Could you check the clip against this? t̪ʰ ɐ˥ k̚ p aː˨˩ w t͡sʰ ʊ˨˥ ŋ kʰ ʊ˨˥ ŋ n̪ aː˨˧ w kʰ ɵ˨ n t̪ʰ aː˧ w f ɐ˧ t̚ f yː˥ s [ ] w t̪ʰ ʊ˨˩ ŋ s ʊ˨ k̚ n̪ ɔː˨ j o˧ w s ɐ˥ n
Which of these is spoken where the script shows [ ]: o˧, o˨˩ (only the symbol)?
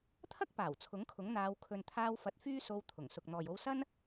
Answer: o˧